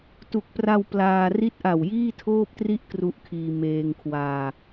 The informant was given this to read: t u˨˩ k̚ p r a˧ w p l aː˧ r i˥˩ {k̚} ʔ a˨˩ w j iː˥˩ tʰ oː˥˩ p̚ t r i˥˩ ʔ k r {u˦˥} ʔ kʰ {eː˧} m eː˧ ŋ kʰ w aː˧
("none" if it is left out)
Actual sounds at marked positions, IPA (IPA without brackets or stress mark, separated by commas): t̚, u˦˥, iː˧